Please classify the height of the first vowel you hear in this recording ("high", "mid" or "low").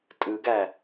high